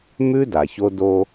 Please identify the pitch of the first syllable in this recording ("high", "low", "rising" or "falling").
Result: high